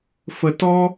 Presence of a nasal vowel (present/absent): absent